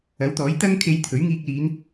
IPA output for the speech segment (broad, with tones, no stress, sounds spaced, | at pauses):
ɐ˨˥ w t̪ ɔː˨˥ j t̪ ɐ˥ ŋ kʰ e˧ j t̪ʰ ɵ˨˥ ɥ ŋ iː˧ k̚ l iː˨˧ n